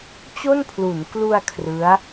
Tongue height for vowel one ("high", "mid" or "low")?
mid